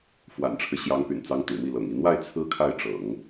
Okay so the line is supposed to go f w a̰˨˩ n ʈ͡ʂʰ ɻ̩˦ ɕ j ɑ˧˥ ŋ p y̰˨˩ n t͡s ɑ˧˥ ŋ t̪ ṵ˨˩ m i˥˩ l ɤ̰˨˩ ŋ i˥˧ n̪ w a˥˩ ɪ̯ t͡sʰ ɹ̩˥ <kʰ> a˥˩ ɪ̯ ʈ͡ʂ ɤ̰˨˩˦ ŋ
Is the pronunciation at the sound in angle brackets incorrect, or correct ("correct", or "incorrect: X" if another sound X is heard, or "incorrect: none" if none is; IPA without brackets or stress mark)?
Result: correct